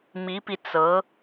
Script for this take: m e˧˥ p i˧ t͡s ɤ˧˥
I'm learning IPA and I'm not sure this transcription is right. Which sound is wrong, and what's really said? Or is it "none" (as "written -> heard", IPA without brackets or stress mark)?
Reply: e˧˥ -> i˧˥